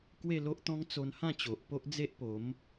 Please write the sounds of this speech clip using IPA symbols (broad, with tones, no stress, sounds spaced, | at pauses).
k w e˥˧ l o˦ ʔ t̪ ɔ̃˦ ŋ t͡s o˧ n h ã˥˧ t͡ɕ o˨ ʔ p o˦ ʔ d͡z e˦ ʔ p o˨˦ m